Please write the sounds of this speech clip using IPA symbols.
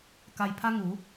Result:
k a˧ j pʰ a˦ ŋ u˨˦

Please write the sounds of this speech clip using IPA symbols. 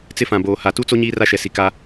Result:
t͡s ɪ˦ f ã˨ b oː˨ h a˨ t u˦ t͡s o˦ ɲ iː˦ r a˦ ʃ ɛ˨ s i˨ k a˦

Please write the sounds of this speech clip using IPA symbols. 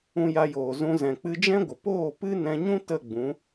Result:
ũ˧ j a˧ j oː˨ z ũ˧ z ɛ̃˨ k͡p ɨ˧ d͡ʒ ɛ̃˦ ɡʷ ə˨ p oː˦˨ p ɨ˦ n ɛ̃˧ ɲ ũ˦ t ə˦˨ ɡ͡b ũ˨˦

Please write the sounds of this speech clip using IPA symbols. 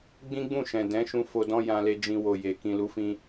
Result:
ɡ͡b ĩ˦ ɡ͡b ũ˦˨ ʃ ɛ̃˨ d ɛ̃˨˦ ʃ ũ˧ f o˧ d ɔ̃˦ j ã˧ l e˦ d͡ʒ ĩ˧ w o˨ j e˨ k ĩ˨ l u˨˦ f ĩ˧

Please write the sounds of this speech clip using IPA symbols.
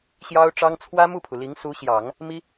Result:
ɕ j ɑ˥ ʊ̯ ʈ͡ʂ ɑ˥ ŋ t͡sʰ w ä˥ m u˥˩ pʰ u˩ l i˧˥ ŋ s u˧˥ ɕ j ɑ˨˩˦ ŋ | m i˥

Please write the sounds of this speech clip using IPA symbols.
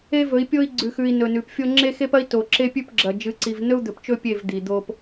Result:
e˦ v ɵ˨˦ i̯ pʲ o˦ i̯ ɡ͡ǀ ʉ˨ x ʉ˨ i̯ n ɵ˨ n ʉ˨ p fʲ o˦ ŋ͡ǁ e˦ x e˦ p ɐ˦ i̯ t o˨ ǁ e˦ pʲ ʉ˦ p ɡ͡ǁ ɐ˨ d͡ʒ ɨ˨˦ ǀ i˨ v n ɵ˦ u̯ d̪ ɵ˨ p t͡ʃ ɵ˦ pʲ e˦˨ v d̪ i˨ d̪ o˦ p

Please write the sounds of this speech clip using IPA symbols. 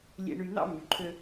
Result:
lʲ ḛ˧ ɳ y˧ n̪ ɑ̰˦ mː y˨ ǃʰ ø˦

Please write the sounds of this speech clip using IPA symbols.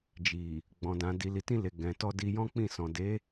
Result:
d͡ʒ i˨ | ɡ͡b ɔ̃˨ d ã˨ d i˨ l i˨ t ĩ˧ l e˨ ɡ ɛ̃˨ t ɔ˧ d i˧ j ɔ̃˦ k͡p ĩ˦˨ s ɔ̃˨ d e˨˦

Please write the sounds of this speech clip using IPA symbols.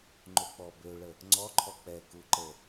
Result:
ŋ͡ǃ o k͡p ɔ b ø ɭ ə | ŋ͡ǀ ɔ ǃʰ ɔ k͡p ɛ k u ǃ ə

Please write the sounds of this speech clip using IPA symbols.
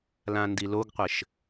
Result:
l ã n d i l o ɡ qʷ ɘ ʃ

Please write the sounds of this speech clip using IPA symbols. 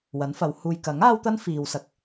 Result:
w ɐ˨˥ n f ɐ˨˧ w h uː˨ j k ɐ˨˥ ŋ aː˥ w t̪ ɐ˥ n f iː˨ w s ɐ˨˥ k̚

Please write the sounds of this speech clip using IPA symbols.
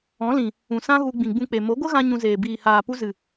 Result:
ɔ̃˨˦ l ĩ˨ | ũ˨ s ã˦ ɣ u˧ ɡ͡b ĩ˨ ɡ͡b ũ˧ k͡p e˨ m o˨˦ ɡʷ ə˦ ɣ ã˧ ɲ ũ˧ z eː˨ b iː˨ h aː˨ p u˧ z ɨ˨

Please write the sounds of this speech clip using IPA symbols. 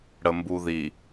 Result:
ɽ ə m b u ð i

